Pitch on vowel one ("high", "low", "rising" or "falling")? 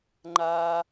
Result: high